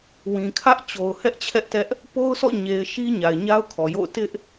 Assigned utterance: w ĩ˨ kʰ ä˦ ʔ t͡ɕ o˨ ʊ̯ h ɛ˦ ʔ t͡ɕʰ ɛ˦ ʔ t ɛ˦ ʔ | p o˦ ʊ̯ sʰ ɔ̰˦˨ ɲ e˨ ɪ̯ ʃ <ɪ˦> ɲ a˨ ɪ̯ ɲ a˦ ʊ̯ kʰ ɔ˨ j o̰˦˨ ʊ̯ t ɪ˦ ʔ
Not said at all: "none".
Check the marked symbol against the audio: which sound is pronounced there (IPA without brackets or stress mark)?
i˦